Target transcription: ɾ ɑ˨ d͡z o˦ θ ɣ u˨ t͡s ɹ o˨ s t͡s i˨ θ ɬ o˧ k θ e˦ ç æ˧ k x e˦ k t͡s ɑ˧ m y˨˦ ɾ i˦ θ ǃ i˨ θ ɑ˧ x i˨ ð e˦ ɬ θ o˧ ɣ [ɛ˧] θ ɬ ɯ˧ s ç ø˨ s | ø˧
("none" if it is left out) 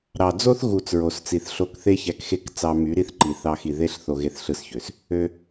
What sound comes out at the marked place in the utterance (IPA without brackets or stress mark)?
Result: e˧